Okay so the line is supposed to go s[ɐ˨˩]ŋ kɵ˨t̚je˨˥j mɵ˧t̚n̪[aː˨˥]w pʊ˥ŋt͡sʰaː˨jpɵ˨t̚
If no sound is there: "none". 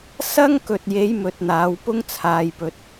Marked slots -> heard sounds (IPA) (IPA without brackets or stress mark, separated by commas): ɐ˥, aː˨˥